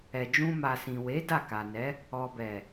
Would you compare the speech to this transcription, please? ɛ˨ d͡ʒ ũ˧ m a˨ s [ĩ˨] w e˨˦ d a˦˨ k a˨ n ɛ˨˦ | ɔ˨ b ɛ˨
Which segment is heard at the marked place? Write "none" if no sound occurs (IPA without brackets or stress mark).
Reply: ĩ˨